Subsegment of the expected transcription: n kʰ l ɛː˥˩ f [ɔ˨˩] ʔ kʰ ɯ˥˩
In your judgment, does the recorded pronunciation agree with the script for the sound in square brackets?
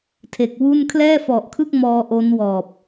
yes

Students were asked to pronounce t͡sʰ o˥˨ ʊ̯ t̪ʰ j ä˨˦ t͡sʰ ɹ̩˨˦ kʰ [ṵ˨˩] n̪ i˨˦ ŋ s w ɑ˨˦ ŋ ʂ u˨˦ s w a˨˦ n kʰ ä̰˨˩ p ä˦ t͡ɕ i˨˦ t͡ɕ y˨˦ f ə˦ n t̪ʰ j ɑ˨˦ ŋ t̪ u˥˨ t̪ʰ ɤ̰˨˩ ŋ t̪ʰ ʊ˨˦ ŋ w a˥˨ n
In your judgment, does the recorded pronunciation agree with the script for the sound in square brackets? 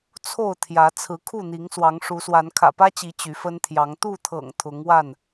no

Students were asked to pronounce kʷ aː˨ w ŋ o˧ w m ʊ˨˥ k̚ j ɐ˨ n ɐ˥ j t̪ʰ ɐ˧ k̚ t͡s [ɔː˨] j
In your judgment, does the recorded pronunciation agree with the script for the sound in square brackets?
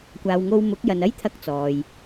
yes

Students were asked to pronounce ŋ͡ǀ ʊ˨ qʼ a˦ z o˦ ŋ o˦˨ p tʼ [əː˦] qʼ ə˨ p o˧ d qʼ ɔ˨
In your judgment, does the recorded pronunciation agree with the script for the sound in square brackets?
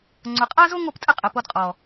no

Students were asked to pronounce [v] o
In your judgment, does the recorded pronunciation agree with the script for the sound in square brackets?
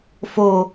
no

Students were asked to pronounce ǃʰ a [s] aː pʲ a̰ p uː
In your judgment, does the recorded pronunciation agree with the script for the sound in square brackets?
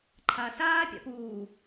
yes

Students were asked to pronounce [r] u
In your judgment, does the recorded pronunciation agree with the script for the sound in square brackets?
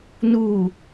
no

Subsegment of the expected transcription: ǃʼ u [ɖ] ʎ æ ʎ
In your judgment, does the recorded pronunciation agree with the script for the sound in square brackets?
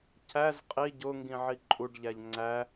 yes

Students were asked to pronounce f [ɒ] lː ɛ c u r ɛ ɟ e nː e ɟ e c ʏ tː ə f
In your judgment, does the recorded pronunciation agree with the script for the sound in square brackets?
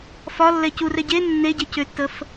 yes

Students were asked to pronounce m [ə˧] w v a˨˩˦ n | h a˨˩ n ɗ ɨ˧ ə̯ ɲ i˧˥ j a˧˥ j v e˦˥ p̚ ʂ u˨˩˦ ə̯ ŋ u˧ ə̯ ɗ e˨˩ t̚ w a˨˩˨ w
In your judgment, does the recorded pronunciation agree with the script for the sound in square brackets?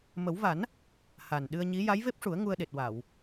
no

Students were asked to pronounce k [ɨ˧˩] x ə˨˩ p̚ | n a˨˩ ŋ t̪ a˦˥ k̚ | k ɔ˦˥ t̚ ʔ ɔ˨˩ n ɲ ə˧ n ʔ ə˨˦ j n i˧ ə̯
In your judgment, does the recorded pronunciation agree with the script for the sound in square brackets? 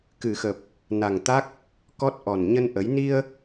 no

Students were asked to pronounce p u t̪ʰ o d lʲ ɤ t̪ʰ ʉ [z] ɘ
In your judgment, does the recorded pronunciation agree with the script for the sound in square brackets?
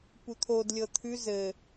yes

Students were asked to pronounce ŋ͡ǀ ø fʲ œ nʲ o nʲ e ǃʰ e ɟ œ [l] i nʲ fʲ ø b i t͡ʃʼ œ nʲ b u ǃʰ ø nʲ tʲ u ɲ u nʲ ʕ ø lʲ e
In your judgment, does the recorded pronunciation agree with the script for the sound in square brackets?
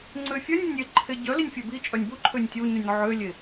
yes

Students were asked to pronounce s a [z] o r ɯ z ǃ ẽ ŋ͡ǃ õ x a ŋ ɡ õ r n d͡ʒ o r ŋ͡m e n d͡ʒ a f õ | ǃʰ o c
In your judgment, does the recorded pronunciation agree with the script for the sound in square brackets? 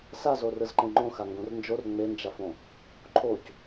yes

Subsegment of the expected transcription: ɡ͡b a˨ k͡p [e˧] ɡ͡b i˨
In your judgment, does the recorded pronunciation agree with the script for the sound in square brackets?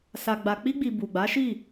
no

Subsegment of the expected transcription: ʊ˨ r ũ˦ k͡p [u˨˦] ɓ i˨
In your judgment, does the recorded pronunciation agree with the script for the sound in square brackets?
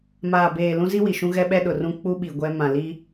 no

